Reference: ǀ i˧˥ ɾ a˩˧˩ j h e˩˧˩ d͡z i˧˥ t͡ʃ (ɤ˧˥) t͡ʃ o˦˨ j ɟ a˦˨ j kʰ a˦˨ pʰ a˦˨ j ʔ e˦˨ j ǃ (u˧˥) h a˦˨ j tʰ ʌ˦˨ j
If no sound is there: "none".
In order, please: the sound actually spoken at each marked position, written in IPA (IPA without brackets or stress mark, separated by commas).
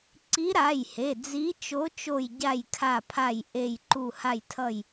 o˧˥, u˦˨